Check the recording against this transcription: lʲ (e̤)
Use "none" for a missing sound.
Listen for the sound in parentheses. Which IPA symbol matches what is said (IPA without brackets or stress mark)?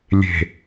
e̤